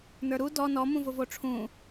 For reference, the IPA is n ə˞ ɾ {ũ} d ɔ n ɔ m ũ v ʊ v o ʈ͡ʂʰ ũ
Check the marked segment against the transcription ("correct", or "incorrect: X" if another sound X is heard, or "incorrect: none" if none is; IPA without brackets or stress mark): incorrect: u